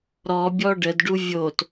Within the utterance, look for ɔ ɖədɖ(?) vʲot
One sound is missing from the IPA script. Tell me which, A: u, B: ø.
A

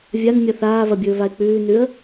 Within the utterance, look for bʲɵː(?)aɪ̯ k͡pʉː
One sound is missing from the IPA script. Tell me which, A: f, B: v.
B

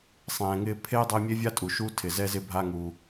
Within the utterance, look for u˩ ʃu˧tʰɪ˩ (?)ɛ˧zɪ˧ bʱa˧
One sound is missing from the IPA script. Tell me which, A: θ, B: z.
B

